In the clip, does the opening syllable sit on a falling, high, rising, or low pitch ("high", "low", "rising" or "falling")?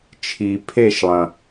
low